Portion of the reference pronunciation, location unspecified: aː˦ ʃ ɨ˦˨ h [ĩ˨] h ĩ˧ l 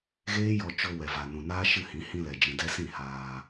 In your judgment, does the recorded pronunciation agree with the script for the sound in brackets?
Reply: no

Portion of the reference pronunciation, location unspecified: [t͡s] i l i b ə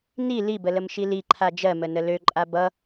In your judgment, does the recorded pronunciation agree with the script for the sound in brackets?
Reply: no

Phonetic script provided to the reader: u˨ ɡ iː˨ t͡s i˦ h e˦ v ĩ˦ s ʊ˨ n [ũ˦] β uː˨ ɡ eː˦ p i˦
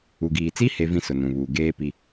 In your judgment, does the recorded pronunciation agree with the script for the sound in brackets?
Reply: no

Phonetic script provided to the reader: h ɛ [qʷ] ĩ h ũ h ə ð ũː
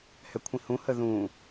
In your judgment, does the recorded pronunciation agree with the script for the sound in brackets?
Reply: no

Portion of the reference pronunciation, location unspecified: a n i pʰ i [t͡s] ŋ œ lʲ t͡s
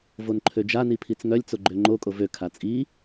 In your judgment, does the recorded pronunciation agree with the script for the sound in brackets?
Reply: yes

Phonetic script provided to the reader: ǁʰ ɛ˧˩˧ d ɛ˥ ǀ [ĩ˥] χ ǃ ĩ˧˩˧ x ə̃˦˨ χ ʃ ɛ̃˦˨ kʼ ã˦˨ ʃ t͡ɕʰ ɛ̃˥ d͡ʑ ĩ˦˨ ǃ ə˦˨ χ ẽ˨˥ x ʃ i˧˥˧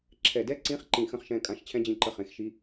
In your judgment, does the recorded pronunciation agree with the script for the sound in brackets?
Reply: no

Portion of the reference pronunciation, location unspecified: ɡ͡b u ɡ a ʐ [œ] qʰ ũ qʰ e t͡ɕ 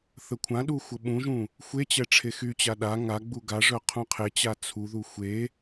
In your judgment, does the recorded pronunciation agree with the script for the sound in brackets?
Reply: yes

